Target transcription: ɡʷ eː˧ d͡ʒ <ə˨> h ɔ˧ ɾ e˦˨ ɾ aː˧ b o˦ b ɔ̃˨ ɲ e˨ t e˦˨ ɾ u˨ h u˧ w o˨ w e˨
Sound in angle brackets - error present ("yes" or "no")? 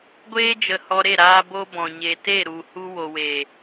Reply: no